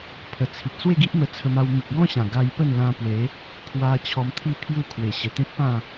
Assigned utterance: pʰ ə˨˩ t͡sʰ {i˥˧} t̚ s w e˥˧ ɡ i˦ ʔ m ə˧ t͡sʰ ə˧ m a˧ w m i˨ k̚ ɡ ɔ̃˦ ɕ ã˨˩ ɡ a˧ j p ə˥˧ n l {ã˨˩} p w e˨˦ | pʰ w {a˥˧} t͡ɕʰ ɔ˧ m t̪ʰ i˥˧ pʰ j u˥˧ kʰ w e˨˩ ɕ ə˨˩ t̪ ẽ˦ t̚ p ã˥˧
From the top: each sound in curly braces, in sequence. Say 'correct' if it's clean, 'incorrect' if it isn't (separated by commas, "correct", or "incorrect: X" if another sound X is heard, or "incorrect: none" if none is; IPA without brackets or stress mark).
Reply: incorrect: i˨, incorrect: ã˧, incorrect: a˧